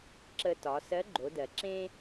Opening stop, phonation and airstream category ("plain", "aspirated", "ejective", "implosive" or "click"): click